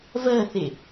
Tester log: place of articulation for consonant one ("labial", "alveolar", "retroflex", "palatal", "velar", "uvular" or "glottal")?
labial